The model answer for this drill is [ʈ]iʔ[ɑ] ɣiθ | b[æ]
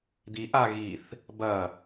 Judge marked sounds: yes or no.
no, no, no

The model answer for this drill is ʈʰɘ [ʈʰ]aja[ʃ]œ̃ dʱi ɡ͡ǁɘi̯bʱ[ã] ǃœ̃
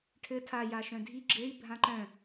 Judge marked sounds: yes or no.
no, yes, yes

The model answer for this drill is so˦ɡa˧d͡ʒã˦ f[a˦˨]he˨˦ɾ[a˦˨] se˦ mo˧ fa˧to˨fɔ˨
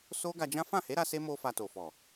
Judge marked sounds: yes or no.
no, no

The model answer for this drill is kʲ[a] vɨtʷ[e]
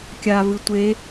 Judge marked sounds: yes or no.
yes, yes

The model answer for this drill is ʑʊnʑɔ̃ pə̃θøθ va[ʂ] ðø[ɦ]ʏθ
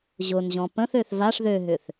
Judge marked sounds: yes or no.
yes, yes

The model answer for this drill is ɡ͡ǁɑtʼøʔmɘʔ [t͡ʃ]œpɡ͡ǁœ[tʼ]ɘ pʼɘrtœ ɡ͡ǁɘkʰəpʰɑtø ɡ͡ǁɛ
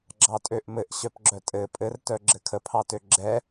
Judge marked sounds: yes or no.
no, yes

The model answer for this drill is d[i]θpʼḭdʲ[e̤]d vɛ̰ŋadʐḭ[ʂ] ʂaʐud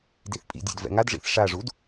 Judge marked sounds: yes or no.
yes, yes, no

